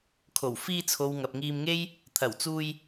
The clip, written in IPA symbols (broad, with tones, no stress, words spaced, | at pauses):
kʰo˨˩w fiː˧t͡sʰo˨w ŋɐ˨p̚ŋiː˧mŋe˥j | t̪ʰɐ˨˩wt͡suː˧j